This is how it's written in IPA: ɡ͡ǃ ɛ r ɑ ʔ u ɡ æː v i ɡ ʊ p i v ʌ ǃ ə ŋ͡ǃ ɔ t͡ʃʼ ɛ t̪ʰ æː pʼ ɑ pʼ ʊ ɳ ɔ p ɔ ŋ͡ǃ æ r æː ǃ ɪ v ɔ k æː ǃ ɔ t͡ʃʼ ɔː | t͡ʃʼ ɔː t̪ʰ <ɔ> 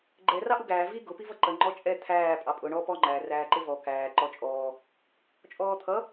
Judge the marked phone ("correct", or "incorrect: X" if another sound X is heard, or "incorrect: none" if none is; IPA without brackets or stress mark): incorrect: ʌ